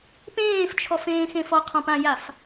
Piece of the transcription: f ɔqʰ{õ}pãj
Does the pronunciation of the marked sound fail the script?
yes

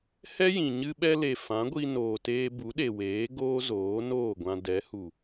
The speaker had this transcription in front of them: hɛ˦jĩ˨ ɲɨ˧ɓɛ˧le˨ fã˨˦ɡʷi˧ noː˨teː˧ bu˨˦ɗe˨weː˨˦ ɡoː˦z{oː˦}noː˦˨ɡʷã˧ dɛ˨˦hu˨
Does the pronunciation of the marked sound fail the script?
yes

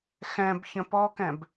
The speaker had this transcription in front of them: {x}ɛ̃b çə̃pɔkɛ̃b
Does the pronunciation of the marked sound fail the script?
no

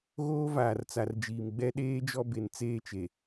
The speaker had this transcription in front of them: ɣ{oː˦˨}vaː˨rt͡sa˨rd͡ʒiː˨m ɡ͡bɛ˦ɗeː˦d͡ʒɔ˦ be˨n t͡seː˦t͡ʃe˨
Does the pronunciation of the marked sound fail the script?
yes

